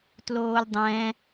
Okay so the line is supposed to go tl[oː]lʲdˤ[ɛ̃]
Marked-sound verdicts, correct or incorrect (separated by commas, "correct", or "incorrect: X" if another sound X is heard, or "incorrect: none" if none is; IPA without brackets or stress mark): correct, correct